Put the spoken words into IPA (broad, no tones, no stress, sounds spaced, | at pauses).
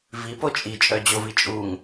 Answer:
v i p o t͡ʃʼ i t͡ʃʼ œ d͡ʑ o v i t͡ʃʼ u ŋ